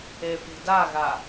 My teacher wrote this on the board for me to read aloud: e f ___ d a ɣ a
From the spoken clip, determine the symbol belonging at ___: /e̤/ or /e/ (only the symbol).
e̤